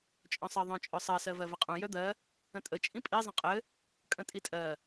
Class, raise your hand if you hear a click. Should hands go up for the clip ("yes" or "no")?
no